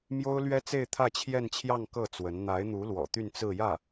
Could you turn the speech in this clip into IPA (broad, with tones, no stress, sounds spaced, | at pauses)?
m j o˥ ʊ̯ l ɥ ɛ˥ t͡s e˥˧ ɪ̯ t̪ʰ ä˥˧ t͡ɕʰ j ɛ˥˧ n t͡ɕʰ j ɑ˥˧ ŋ k ɤ˥˩ t͡s w ə˧˥ n n̪ a˧˥ ɪ̯ n̪ u˧˥ l w ɔ̰˨˩ t̪ y˥˧ n t͡s ɹ̩˥˧ j ä˥˩